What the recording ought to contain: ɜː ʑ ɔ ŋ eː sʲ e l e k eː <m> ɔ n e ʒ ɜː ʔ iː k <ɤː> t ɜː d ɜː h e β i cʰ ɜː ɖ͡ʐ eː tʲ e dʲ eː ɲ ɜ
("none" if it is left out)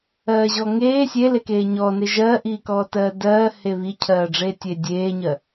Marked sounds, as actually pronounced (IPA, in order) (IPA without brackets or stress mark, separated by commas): ɲ, ɔː